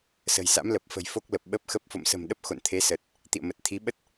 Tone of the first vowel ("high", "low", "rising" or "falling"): low